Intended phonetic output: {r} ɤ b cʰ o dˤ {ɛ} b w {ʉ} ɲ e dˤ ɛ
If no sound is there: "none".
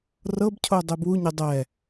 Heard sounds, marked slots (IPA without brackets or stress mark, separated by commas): r, e, u